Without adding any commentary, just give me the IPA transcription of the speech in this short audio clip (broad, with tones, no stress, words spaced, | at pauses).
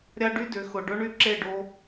ɾʲa˦ɖy˦dʏ˨˦ xʊ˨ɖʊ˦ ɳy˦ǁe˦˨ɖo˦